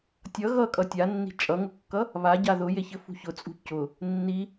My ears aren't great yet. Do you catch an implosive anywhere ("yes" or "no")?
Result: no